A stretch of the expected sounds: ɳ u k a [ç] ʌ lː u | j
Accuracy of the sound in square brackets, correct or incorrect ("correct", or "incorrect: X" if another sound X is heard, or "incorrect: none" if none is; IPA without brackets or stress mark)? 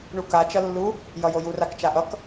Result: incorrect: t͡ʃ